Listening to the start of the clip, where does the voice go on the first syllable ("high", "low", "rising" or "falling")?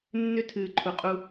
high